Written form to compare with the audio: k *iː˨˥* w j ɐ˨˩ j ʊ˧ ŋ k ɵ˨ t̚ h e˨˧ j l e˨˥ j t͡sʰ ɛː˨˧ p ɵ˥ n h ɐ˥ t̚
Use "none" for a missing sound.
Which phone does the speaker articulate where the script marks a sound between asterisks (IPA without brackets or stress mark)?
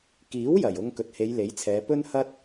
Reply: iː˨˥